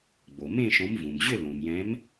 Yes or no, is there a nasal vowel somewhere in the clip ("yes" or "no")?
yes